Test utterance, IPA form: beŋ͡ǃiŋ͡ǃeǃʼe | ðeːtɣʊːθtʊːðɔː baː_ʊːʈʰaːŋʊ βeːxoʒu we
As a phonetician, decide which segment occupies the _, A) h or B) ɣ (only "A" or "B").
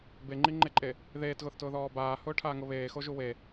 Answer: A